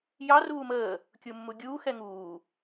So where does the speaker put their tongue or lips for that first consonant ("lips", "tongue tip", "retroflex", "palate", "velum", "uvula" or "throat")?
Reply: palate